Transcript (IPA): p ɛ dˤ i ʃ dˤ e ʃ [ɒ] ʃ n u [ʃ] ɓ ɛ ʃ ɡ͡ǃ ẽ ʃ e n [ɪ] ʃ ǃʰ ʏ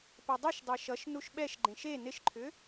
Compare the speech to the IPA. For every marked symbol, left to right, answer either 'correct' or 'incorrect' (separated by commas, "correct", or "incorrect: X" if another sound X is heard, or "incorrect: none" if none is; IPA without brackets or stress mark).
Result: incorrect: ʌ, correct, correct